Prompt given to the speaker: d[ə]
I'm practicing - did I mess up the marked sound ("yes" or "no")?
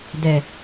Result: yes